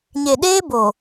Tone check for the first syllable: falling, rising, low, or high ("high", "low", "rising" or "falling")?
low